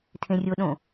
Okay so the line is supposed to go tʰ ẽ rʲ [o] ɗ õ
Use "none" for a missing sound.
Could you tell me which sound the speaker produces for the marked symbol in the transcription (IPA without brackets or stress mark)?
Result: o